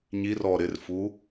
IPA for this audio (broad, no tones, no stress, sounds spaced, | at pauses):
ɲ i r ɔ ɾ ɪ r f u